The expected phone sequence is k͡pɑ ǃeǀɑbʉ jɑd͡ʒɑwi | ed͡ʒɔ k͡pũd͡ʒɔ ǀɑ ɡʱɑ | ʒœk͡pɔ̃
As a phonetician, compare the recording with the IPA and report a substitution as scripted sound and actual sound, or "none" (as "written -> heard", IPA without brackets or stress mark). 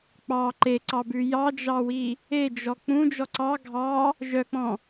none